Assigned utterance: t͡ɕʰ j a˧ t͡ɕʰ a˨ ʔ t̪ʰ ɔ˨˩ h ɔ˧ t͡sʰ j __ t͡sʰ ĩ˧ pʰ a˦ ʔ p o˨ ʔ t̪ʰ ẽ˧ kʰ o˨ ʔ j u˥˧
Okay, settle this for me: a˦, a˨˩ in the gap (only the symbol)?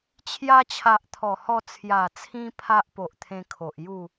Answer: a˨˩